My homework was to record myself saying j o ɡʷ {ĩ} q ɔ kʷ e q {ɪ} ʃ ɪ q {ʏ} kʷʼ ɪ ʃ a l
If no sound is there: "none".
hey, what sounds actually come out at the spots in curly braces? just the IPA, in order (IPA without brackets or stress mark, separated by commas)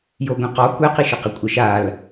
ĩ, i, ɪ